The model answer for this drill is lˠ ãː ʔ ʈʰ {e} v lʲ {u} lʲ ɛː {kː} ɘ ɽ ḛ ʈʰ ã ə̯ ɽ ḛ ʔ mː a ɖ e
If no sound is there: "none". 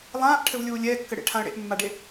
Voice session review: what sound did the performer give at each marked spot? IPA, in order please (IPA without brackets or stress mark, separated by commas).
ɘ, uː, kː